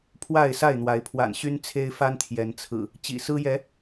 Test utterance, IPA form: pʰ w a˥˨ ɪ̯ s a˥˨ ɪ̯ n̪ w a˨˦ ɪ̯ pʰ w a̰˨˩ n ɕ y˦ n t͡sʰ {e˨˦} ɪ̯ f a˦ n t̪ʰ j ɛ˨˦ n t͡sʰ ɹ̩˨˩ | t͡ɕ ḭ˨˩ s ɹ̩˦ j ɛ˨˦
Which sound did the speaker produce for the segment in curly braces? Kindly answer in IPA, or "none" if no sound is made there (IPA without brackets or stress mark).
e˦